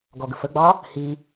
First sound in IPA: ɡ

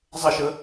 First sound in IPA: zˤ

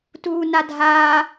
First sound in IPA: t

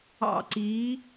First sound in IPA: ɑ̰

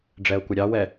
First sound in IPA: ɖ͡ʐ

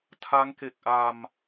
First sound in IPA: tʰ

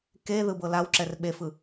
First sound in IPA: k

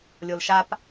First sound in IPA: lʲ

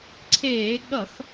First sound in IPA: ǀʰ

